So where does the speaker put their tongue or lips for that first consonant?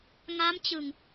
velum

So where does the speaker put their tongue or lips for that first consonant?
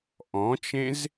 throat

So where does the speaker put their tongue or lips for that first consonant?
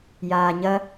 palate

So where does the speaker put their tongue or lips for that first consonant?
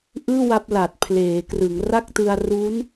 throat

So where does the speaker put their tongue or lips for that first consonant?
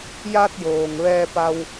palate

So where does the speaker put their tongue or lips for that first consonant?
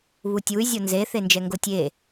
lips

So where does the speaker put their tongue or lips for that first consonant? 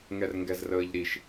velum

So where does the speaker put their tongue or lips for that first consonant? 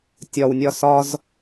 tongue tip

